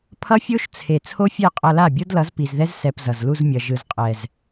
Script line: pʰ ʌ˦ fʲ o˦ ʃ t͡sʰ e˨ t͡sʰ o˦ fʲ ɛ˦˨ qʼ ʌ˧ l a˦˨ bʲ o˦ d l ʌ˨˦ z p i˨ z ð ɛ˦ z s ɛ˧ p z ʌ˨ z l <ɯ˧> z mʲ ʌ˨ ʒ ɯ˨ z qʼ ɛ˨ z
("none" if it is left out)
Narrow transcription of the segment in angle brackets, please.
u˧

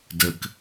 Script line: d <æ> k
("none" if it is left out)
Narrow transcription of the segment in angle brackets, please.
ə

